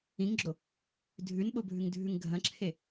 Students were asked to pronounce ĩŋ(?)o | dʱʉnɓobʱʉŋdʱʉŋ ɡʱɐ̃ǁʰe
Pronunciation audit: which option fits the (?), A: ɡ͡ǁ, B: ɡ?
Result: A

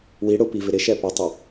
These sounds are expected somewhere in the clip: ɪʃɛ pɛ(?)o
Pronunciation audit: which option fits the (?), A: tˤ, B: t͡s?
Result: A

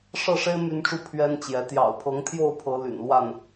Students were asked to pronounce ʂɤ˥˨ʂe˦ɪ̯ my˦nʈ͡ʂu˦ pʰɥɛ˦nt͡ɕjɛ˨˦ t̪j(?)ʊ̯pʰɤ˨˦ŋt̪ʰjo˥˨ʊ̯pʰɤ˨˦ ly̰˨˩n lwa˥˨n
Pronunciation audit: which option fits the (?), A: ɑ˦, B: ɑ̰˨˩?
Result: B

